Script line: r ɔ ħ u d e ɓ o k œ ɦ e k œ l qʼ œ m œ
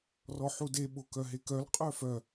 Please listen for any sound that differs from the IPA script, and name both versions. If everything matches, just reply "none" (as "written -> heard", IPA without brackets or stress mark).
m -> f